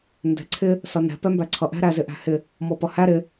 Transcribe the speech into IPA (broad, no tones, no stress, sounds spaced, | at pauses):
n d ɛ̤ ǀʰ ɪ | s ʌ n ɛ̤ p ɛ m b æ ǀʰ ʌ ʔ ɛ̤ ɾ æ z ɪ ʔ æ̤ h ɪ | m ɔ p ʌ h æ ɾ ɪ